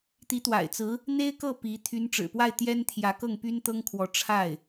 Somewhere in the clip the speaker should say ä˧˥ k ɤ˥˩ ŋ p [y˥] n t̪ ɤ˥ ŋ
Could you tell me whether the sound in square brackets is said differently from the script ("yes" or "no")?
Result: no